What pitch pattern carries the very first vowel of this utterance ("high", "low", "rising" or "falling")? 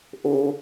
high